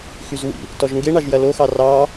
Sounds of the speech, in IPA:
xyzwḭ | tɔʒŋɡeɳɑʒ jɐloxɑ rɑ

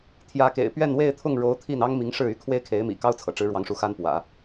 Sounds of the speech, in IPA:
t̪ʰjä˧˥kḛ˨˩ɪ̯pɥɛ˥˧n we˥˧ɪ̯t̪ʰʊ˥˩ŋɻo˧˥ʊ̯ t̪ʰi˥˩n ɑ˥ŋmi˧˥ŋʂɻ̩˥˩y˥ kʰwe˥ɪ̯kʰe˧˥ɪ̯mḭ˨˩kɑ˥ʊ̯ t͡sʰɤ̰˨˩ʈ͡ʂɻ̩˧˥ɻwɑ˧˥ŋʂu˧˥ xa˥npwä̰˨˩˦

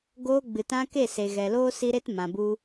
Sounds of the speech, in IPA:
ɡoː˧ ɡ͡bɨ˨tã˧ke˦˨ se˨ɣɛ˨loː˧ si˦ɾe˦t mã˨bu˧

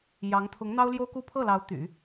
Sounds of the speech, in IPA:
jɑ˧˥ŋ t̪ʰʊ˧˥ŋn̪ɑ˥ʊ̯ljo˥ʊ̯ku˥˧ pʰɤ˥˩lɑ˧˥ʊ̯ t̪y̰˨˩˦

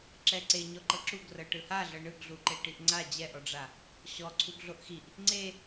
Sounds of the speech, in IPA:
ǁɛǀe ɲɔǃɤǁuɡ rɤʈɯhaɮɤ ɳɯɡɮuǃe ʈiʔŋ͡ǀa d͡ʑɛʔɔɖ͡ʐa | ɕɔ ǀʰuɡɮoʔxiʔ | ŋ͡ǀe

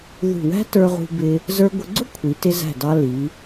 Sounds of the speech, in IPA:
ðṳ˧˩wæ̤˥ tə˞˧ʁṳ˧bɪ˧ | zə˞˧ɡʷə˧ɡ͡ǀʊ˥kʷʰi˩˧ tɪ˧zæ̤˧˩dɑ˧ li˩˧

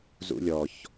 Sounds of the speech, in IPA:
zṵlʲɔç

